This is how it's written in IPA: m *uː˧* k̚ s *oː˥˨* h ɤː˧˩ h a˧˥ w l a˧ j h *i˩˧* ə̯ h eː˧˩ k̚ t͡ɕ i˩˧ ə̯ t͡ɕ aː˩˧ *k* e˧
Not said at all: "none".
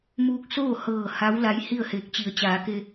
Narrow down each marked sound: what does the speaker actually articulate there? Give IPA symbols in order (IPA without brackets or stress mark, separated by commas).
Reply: uː˧, oː˥˨, i˥˨, k